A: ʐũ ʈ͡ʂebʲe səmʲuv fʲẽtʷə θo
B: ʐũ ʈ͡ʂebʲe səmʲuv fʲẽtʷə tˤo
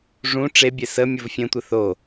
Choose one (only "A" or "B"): A